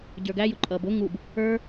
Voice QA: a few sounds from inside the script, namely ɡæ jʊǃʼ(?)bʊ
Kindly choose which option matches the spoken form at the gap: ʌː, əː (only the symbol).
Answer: ʌː